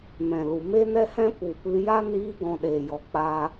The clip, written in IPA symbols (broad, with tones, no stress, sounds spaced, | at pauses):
m ɛ̃˨ l u˨ m e˦ n ɛ˦ h ɛ̃˦ p u˨ p ɨ˧ j a˦ n iː˧ ɡ ɔ̃˧ ɗ eː˨ j ɔ˨ k͡p a˦